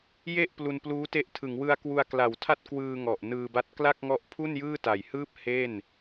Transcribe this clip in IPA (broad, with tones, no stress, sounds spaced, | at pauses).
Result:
j e˥˩ ʔ p l u˧ n p l uː˦˥ t e˦˥ ʔ tʰ ɯ˩˦ ŋ w ɯ˧ a̯ k w u˧ a̯ k l a˩˦ w tʰ a˥˩ t̚ k w ɯː˧ ŋ ɔ˨˩ ʔ n ɯː˧ b a˦˥ t̚ k l a˥˩ k̚ ŋ ɔ˦˥ ʔ pʰ u˥˩ n j ɯː˥˩ t a˨˩ j h ɯː˥˩ p̚ h e˥˩ n